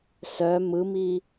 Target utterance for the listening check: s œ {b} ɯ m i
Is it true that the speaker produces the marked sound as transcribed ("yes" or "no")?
no